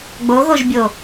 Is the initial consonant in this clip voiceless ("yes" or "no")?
no